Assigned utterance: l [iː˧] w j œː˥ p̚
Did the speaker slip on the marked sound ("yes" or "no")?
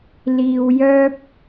no